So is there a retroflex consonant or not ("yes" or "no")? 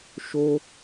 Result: no